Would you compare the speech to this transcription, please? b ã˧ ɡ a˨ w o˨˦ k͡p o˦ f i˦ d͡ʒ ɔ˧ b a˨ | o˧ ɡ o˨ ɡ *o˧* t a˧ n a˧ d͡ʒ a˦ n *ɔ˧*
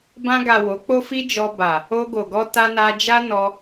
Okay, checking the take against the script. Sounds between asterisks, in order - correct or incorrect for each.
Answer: incorrect, correct

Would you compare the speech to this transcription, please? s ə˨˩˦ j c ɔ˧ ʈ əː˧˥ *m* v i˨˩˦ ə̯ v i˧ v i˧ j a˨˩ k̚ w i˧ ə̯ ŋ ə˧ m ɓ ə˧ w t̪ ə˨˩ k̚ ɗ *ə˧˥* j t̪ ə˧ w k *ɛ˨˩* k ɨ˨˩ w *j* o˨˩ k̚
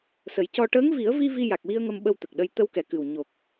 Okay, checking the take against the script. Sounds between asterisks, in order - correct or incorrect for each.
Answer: incorrect, incorrect, correct, incorrect

